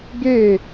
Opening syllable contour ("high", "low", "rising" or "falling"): falling